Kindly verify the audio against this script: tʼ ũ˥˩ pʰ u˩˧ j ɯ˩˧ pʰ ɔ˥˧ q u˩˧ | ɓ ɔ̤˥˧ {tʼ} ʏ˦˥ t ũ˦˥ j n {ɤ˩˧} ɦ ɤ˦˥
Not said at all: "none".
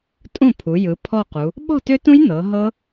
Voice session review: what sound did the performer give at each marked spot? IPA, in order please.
t, ɤ˩˧

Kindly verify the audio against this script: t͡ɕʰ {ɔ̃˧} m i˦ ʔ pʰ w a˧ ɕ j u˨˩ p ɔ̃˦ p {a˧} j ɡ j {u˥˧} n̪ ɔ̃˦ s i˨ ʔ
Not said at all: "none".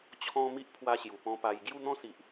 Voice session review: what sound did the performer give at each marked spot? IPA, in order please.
ɔ̃˧, a˧, u˥˧

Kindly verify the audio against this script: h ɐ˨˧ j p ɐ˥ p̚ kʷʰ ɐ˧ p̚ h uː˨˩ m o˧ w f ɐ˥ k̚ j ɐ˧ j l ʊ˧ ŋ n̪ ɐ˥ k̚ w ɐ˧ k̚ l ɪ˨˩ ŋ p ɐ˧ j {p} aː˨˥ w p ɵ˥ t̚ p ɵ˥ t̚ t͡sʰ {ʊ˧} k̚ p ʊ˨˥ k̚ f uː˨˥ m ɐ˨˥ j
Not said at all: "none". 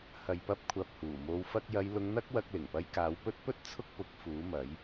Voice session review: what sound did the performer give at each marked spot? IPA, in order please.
k, ʊ˥

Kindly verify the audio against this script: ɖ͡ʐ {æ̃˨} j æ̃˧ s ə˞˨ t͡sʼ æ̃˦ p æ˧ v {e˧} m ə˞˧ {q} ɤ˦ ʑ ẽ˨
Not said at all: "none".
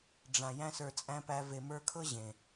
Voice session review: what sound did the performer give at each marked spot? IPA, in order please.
ã˨, e˨, kʰ

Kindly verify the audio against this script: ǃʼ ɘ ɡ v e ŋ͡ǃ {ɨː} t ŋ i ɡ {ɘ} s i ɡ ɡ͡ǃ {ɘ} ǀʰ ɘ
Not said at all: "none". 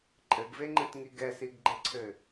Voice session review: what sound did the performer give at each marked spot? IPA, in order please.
ɨ, ɛ, ɘ

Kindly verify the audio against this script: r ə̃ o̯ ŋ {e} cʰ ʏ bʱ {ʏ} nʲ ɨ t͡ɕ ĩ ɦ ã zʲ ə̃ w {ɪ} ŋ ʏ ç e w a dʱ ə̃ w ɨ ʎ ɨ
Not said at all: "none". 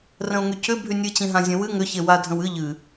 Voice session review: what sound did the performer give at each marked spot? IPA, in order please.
y, y, ɨ

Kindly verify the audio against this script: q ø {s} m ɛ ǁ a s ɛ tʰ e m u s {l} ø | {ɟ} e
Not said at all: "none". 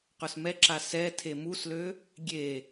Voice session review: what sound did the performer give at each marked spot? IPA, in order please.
s, l, ɡʲ

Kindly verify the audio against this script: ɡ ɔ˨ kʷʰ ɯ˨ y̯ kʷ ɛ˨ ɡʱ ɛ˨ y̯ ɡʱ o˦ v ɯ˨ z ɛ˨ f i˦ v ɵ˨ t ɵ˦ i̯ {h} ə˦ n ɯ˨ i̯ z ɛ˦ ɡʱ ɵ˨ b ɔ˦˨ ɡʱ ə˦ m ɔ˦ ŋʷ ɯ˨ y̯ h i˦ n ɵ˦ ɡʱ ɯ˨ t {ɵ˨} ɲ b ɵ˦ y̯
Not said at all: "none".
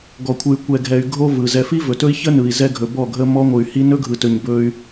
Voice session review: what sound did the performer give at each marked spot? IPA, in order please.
ç, ɵ˨

